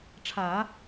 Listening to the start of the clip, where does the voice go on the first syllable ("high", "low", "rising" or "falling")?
low